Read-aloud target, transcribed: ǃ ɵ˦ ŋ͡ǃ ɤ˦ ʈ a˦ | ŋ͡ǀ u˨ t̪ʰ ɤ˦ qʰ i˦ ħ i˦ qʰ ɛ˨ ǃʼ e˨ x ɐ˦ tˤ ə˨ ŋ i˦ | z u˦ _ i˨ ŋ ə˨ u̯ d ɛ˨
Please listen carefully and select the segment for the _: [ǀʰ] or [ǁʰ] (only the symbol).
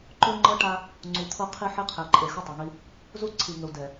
ǀʰ